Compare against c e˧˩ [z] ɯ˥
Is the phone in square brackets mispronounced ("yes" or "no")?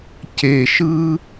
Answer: yes